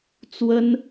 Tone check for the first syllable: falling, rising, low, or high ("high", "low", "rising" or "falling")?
high